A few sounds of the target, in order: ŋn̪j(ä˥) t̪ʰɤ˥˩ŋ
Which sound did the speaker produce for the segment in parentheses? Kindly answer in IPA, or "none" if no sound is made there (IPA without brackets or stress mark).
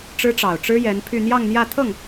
ä˥˧